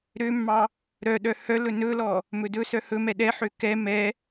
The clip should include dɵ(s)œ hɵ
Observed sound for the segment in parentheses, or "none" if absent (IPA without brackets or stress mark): s